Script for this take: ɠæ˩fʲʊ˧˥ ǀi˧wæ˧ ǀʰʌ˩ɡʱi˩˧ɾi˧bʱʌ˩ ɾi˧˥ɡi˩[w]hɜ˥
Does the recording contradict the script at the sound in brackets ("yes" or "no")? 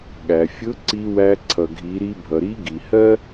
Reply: yes